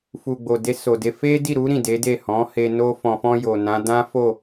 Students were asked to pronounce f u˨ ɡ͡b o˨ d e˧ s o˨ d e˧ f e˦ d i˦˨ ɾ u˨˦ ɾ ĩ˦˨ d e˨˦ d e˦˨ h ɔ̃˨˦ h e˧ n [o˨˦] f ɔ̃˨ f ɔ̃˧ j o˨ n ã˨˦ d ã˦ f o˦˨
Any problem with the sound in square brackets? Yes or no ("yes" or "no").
yes